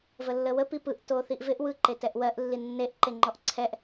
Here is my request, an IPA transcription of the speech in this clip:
vəlːəwə pipɯʔ toθiʔvɪʔ wɯ ǃetɛʔwɜʔ lːinːeʔ ǃeŋ͡ǃɔʔǀʰɛʔ

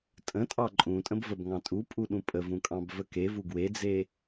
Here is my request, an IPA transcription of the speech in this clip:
tʼə̃tʼɑ ǃʼũtʼə̃bvəbŋɑ̃ tʼupʼuɗũ pʼəvũkʼɑ̃bvə kevu ɡwed͡ze

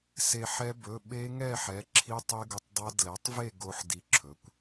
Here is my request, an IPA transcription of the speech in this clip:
se˧ħɛ˦˥ bɵ˩˧˩ ɓe˦˥ŋɛ˥˨ ħɛ˩˥ ǁʰi˦˥tˤe˦˥ɡʊ˧tˤdˤa˦˥ dlɛ˩˥tˤve˥˨ ɡo˧ħ di˧ǁʰɵ˩˥kʷ

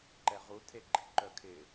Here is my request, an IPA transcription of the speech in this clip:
ǃɛʁutʰe ɡ͡ǃḭǃœkʰɪ

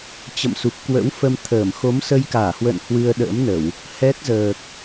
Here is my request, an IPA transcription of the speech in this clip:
t͡ɕə̰˧˨msu˨˩p̚kwə̰˧˥wfə˧m t̪ʰəː˧˩m xo˨˦msə˧jkaː˧˩hwə̰ː˧˨n hwɨ˧ə̯ɗə̰ː˧˥mnə˧˩˨w | hɛ˦˥t̚ zəː˨˩k̚

